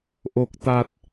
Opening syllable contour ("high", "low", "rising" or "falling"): low